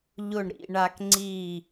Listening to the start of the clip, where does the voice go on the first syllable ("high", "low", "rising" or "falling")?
falling